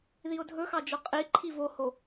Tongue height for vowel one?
high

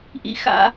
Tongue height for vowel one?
high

